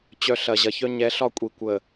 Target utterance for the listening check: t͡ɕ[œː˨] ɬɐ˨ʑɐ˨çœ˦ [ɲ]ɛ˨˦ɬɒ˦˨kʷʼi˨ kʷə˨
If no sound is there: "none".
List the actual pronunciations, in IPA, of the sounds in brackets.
œ˨, ɲ

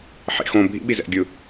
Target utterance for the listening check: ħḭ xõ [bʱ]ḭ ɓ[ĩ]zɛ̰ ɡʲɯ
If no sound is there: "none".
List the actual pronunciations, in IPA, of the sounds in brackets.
bʱ, i

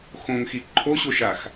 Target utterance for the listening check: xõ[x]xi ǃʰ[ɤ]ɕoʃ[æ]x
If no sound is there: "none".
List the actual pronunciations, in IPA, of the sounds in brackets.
ŋ, o, a

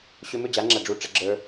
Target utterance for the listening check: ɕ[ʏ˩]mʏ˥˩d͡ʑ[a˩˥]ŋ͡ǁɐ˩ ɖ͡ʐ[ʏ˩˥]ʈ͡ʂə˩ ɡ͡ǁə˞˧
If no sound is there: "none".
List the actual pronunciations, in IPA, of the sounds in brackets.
ʏ˧, a˩˥, u˩˥

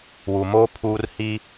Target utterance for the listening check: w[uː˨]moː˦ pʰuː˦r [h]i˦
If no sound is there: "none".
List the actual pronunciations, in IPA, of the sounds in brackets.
u˨, h

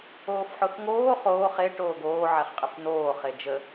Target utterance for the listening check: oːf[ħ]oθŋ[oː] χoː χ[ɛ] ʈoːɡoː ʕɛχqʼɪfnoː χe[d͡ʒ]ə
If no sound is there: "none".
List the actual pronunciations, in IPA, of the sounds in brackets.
ħ, oː, e, d͡ʒ

